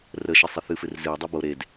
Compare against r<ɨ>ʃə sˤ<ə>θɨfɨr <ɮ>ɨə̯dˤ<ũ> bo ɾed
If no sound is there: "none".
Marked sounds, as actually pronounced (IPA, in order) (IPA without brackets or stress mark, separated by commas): ə, ə, z, u